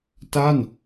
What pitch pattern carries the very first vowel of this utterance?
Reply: falling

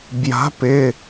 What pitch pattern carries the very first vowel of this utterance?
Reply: rising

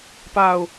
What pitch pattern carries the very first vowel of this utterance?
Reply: falling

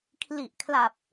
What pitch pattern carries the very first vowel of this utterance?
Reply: low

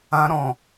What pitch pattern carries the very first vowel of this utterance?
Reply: high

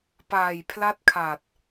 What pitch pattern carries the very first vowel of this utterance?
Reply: low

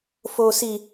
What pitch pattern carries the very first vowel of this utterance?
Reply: high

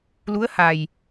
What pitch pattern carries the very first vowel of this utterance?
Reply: rising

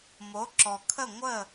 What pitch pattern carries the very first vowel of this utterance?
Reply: rising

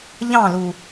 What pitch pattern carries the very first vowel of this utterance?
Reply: falling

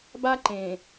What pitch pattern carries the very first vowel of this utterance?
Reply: high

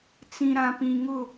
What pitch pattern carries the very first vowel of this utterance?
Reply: low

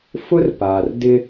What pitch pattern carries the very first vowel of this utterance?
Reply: high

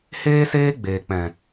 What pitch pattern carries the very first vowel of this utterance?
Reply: high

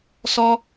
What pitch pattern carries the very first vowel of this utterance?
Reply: high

